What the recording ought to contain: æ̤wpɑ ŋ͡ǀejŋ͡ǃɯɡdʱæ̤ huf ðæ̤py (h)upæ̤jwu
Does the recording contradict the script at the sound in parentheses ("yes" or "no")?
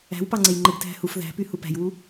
no